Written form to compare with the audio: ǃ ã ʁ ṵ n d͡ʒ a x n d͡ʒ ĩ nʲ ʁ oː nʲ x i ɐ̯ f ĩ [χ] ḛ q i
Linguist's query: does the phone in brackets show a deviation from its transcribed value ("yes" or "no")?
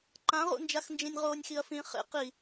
no